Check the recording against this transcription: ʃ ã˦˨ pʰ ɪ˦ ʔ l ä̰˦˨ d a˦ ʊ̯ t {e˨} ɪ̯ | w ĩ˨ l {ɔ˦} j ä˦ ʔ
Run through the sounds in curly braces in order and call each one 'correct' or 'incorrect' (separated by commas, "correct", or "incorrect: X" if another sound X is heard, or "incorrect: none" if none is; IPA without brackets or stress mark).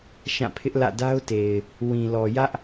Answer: correct, incorrect: ɔ˨